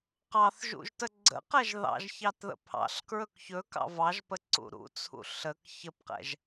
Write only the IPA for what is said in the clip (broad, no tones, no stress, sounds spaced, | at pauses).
q ɑ θ ʒ ṵ ʒ t ə ɡ͡ǀ ə̰ q ɛ ʒ ð ɑ̰ ʒ ç ɑ t ð ə̰ pʰ ɑ̰ ɬ k ɹ ɵ k ç ɵ k ɑ̰ v ɑ ʒ p ə ǀ ṵ ɾ ṵ t͡sʰ ṵ ɬ ə k ç ə p q ɛ̰ ʒ